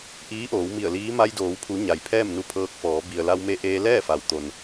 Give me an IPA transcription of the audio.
ʔ iː˧˥ ʔ oː˩˧ w m i˧˩ ə̯ l iː˧˥ m a˧ j d oː˩˧ w pʰ u˩˧ ɲ a˩ j pʰ ɛː˥˨ m n u˧ pʰ ɤː˧ k̚ f ɔː˩˧ b i˩ ə̯ l a˧ w m e˧ ʔ eː˧ l ɛː˥˨ f a˩ w t̪ o˩ n

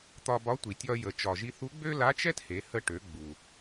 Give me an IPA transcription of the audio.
t̪ ɒ˧ b ɒ˧˥ tʷ i˩ tʲ ɒ˧ j ə˩ t͡ʃ ɒ˩ ʒ i˧ θ u˧˥ ɡ͡b ø˥ l a˧˥ t͡ʃ ɛ˥ t h e˩˧ h ə˧ ʈ ø˩˧ ɡ͡b u˩

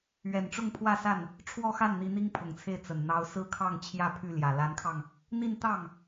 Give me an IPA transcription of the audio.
ɥ ɛ˨˩ n ʈ͡ʂ ʊ˥˧ ŋ pʰ w ä˥˧ s a˥˩ n | ʈ͡ʂʰ w ɔ˥˧ x a˥˩ n n̪ i˧˥ n̪ i˥ ŋ pʰ ʊ˨˩ ŋ t͡sʰ e˥˩ ɪ̯ t͡s ə˨˩ n n̪ ɑ˥ ʊ̯ s ɹ̩˥ kʰ ɑ˥˧ ŋ t͡ɕʰ j ä˥˧ pʰ y˥˩ l j ä˨˩ l a˧˥ n kʰ ɑ˧ ŋ | n̪ i˥˧ n t̪ ɑ˥˩ ŋ

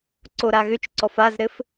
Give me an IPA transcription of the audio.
ǀ o ɾ a ɣ ʏ t͡ʃ ǀ ɔ f a z ɾ ɘ f

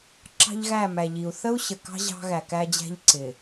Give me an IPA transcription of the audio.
ǁ ɑ̤˦ ʎ ɣ æ˦˨ m æ˨ ʎ i˨ u̯ θ ə˦ u̯ ɕ ə˨ k ɑ̤˦ ʑ ɑ̤˦ ɣ æ˨ k æ˦ d͡ʑ æ̤˦ ʎ ǀ ɪ˨

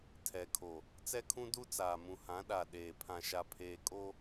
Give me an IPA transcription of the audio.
tʰ ɛ˨ kʰ o˨ | t͡s ɛ˦ kʰ ũ˦ d u˦ t͡s aː˨ m ũ˨ h ã˨˦ ɗ a˨ ɗ eː˨ pʰ ã˨ ʃ a˨ pʰ eː˨ kʼ o˦

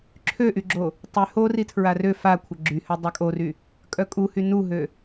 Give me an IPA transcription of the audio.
ǁʰ ø ʔ y ɡ͡ǁ o | tˤ y h o r i tʰ ɹ a r ø f a kʷʰ ə ɡ͡ǁ y h ø dˤ œ kʼ o r y | kʼ œ kʼ u h y n u ɦ ø

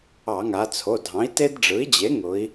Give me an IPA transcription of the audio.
ɑ˧˩˧ ŋ a˩˧ t͡sʰ o˩˧˩ dʱ ɑ̃˩˥ i̯ t e˦ d ɖ͡ʐ ɯ˩˥ i̯ d͡ʑ e˩˥ ŋ ʊ˩˧ i̯

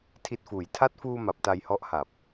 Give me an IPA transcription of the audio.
tʰ i˨˩ t̚ f uː˩˦ j tʰ a˦˥ t̚ f uː˧ m a˨˩ p̚ t a˧ j h ɔ˦˥ ʔ h a˨˩ p̚

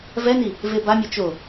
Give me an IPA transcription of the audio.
v ɛ n i | v e b a mʲ ɛ t͡ʃ o

